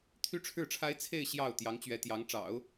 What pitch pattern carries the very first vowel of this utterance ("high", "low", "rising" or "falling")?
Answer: high